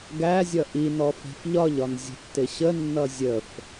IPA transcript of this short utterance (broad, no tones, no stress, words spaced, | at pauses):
ɡæzʲʌ ʔinɔ fɛ̤fʎɒʎɒn zʲə̤tːɪɕənːʌ zʲəf